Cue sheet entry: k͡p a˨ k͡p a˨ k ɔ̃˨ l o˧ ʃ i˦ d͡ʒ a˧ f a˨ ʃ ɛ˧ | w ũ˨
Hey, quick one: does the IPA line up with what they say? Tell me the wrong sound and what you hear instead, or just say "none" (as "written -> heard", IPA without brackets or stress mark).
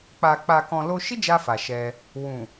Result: none